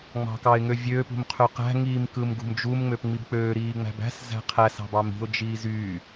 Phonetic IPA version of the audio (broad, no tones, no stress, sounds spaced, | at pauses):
ŋ͡m ɑ̤ k ɑ ɪ̯ ŋ ø vʲ øː p ṳ m qʰ ø q æ̤ ŋ iː m k ɯ m ɡ ṳ m d͡ʒ u m ŋ͡m ø p ŋ͡m i b k͡p øː ɾ iː ŋ͡m æ̤ b æ̤ s z æ̤ qʰ æ s ɑ̤ b ɑ m i̤ ʊ̯ d͡ʒ iː z yː